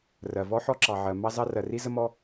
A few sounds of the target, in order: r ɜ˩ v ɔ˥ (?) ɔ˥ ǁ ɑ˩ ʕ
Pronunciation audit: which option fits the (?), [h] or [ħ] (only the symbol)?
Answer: ħ